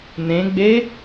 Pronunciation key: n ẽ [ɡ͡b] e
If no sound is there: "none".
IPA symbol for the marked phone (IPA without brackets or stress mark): ɡ͡b